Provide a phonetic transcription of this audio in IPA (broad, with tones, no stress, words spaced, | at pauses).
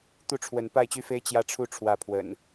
t̪u˥˨ʈ͡ʂʰwə˨˦n pa˥˨ɪ̯t͡ɕy˦fe˦ɪ̯ t͡ɕjä˥˨ʈ͡ʂʰu˥˨ ʈ͡ʂʰwä˥˨ pʰwə̰˨˩n